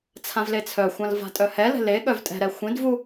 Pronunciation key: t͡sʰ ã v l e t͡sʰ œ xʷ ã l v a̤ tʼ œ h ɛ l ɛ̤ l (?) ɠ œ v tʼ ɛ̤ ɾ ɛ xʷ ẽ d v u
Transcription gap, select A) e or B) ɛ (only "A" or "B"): A